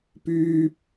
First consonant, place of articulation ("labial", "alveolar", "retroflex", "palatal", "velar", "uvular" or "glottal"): labial